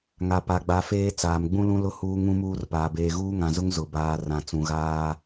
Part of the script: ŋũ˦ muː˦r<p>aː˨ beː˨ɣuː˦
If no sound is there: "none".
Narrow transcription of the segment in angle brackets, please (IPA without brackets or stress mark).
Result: p